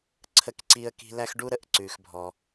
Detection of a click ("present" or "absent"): present